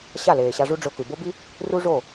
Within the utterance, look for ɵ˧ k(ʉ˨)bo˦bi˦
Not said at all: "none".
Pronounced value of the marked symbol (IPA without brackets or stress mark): ʉ˨